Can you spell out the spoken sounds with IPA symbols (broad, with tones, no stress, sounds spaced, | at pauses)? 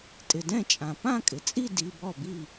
tʼ ɪ˩ d ɛ̃˥˩ t͡ʃʼ ã˩ p ã˥˧ kʼ ɪ˩ t͡sʼ i˥˧ d i˩˧˩ b ɔ˥˩ b i˥˩